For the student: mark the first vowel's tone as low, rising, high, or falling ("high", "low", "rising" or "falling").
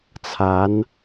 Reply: rising